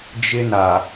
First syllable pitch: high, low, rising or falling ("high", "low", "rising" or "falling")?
high